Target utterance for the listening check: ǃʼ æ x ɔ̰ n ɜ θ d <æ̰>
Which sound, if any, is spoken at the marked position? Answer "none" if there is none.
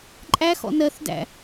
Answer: æ̰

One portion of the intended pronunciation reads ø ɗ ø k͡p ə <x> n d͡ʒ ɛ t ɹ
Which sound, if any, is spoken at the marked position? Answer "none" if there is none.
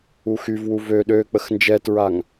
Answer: x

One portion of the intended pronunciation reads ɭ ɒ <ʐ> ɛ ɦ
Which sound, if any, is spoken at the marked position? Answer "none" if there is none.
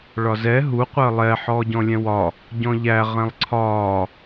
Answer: z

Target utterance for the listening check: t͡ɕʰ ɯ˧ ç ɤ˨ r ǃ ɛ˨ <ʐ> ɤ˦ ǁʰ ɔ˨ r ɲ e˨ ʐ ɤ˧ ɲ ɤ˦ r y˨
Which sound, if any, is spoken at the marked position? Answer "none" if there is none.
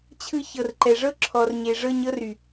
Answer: ʐ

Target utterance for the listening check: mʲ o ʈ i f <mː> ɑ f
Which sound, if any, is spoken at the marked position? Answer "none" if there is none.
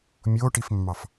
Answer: mː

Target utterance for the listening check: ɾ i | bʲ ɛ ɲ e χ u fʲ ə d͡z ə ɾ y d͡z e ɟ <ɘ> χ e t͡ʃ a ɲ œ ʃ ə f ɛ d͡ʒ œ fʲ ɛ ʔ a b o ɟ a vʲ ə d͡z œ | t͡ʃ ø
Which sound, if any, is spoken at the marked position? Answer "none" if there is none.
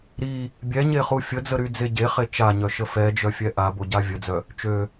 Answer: e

